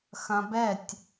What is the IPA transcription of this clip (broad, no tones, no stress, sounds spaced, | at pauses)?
x ɐ̃ b ɛ tʲ